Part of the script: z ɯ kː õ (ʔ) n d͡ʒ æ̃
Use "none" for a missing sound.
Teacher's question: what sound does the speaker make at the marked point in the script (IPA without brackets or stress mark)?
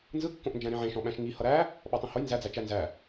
ʔ